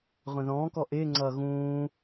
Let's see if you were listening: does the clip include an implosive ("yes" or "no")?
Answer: no